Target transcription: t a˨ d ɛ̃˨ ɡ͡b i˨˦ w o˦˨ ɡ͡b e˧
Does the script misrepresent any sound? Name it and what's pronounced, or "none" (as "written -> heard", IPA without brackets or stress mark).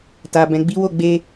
d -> b